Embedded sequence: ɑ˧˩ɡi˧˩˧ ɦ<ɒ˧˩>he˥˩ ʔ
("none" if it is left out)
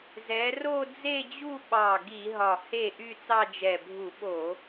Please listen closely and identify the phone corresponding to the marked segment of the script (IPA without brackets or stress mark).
ɒ˧˩